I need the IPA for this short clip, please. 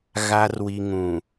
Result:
ɣ a˨ r w i˨ ŋ ũ˨

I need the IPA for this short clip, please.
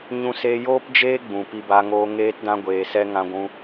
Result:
ɲ ũ˧ s e˧ j oː˦ p d͡ʒ eː˦ ɡ͡b ũ˨ p i˧ b a˧ ŋ oː˧ ŋ eː˦ t d ã˧ ɡʷ eː˨ s ɛ˧ ŋ ã˧ ɡʷ ũ˧

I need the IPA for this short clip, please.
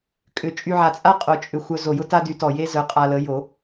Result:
kʼ ʏ˨˩˦ t͡ʃʼ y˧ ʕ a˧˩ t͡sʼ a˥ qʼ o˨˩˦ t͡ʃʼ ʏ˧˩ xʷ œ˧ z o˧˩ j ʊ˥ t a˥ d y˨˥ t ɔ˧˩ j e˥ z œ˨˥ qʼ a˧ l ə˨˥ j o˨˩˦

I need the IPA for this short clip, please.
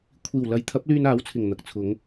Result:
kʷʰ iː˨˩ w l ɐ˨˥ j t̪ʰ ɐ˨˥ p̚ l yː˧ n aː˨˥ w t͡sʰ ɪ˨˩ ŋ n̪ ɐ˨ k̚ t͡sʰ ʊ˨˧ ŋ

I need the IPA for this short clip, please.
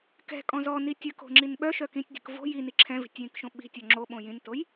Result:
k ɛ̤ kʼ ɔ̃ z ɔ n i tʲ ə k o̤ ŋ͡ǁ i n ɓ œ ʃ œ k ĩ tʲ dʲ ə̤ k v o̤ j i n i ǁʰ ɛ̃ v i̤ tʲ j ĩ k ʃ õ ɓ i̤ tʲ ɔ ŋ͡ǁ o ɓ õ j ĩ n t o j

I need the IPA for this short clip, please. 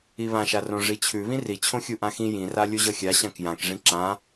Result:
i β ã ʃ a r õ ʐ i t͡ɕʰ ʉ β ĩ r i t͡ɕʰ õ xʲ u ʔ ã x ĩ j ĩ r a lʲ u ʑ ʌ xʲ a ɕ ã k j ã k ʐ ĩ ǁ ã

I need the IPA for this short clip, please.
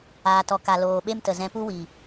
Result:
aː˨ t ɔ˨ k a˨ l oː˨ ɓ e˦ m t ə˨ z ɛ̃˧ p u˦ w i˨

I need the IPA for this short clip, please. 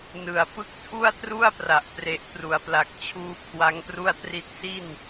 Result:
n ɯ˨˩ a̯ p ɯ˦˥ k̚ tʰ u˥˩ a̯ t r u˥˩ a̯ p r a˨˩ ʔ p r e˨˩ ʔ p r u˩˦ a̯ p l a˨˩ k̚ t͡ɕʰ uː˧ kʰ w a˦˥ ŋ p r u˥˩ a̯ t r i˥˩ t̚ s i˥˩ n

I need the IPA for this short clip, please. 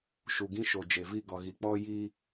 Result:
ʃ u˨ ɡ ĩ˦ ʃ o˨ d͡ʒ e˨ v i˦˨ ɡ ɔ˨ ɣ i˨ k͡p ɔ˦ j i˦

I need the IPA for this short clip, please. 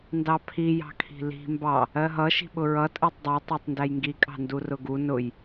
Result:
n d ɑ pʰ i j ɑ̤ kʰ i̤ l i̤ m b ɑ | ɜ ɦ ʌ ʃ i̤ ɓ ʊ ɹ ʌ tʼ ɜ tˤ dˤ ɜ tˤ ɜ tˤ n d æ j ŋ ɡ i kʼ ɑ̤ n d u r ʊ ɡ u n ʊ j

